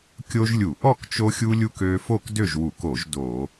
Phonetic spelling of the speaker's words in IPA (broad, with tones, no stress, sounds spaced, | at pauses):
kʲ o˦ ʒ lʲ u˧˩˧ ʔ ɔ˥˨ k t͡ʃ o˦ xʲ u˦ lʲ u˦ k ø˦ f o˥˨ k d ø˥˨ ʒ w u˧˩˧ k o˧˩˧ ʒ d o˧˩˧